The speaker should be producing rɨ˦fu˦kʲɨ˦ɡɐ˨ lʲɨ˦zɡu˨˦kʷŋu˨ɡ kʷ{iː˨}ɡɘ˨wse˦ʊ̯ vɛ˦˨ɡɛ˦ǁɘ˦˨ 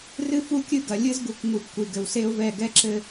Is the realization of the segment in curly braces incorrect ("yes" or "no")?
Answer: yes